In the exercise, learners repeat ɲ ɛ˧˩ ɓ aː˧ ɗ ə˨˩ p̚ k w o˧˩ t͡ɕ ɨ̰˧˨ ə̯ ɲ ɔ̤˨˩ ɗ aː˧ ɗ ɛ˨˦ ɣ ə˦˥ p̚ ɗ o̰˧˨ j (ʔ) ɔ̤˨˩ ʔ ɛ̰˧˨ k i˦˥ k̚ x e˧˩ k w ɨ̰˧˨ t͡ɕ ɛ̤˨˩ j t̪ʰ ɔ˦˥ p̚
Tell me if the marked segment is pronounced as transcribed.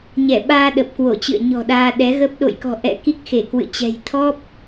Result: no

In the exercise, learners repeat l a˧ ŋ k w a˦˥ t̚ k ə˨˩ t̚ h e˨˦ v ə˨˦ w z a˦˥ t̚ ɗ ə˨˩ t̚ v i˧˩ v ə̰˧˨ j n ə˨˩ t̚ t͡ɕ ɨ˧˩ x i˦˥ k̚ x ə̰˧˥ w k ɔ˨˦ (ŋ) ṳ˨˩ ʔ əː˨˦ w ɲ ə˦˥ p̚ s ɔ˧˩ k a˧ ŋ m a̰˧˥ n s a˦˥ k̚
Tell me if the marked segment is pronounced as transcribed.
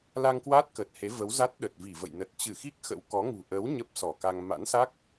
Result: yes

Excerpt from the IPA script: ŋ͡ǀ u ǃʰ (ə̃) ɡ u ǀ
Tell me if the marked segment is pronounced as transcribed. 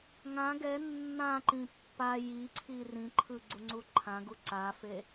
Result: no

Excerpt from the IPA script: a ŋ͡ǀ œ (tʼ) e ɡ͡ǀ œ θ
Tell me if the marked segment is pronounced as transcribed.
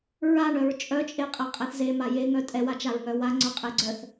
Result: no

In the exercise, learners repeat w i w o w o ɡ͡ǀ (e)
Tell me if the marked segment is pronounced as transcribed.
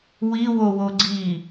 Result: no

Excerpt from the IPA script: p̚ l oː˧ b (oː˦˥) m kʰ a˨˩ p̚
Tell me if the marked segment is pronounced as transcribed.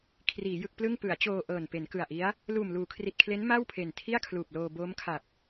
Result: yes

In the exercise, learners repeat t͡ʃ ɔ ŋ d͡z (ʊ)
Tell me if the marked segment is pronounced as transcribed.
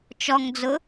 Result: yes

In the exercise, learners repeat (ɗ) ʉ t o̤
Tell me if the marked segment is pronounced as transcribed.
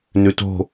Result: no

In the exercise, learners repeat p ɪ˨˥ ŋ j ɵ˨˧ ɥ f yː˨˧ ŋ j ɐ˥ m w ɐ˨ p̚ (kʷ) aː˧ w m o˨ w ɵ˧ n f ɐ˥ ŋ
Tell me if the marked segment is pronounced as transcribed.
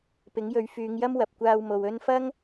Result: yes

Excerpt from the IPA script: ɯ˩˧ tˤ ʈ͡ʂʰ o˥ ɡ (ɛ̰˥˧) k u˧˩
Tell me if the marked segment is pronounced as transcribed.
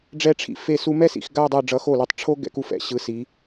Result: no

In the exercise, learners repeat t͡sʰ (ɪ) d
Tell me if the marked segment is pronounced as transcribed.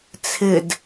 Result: yes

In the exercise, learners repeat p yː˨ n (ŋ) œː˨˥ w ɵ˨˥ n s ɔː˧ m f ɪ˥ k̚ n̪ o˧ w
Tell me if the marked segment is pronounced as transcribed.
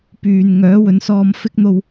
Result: yes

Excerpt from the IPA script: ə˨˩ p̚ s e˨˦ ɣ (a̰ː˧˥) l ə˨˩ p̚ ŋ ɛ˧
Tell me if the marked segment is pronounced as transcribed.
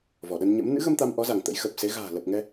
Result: no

